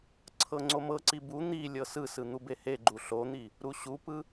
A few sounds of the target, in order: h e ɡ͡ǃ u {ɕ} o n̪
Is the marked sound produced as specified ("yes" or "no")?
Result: no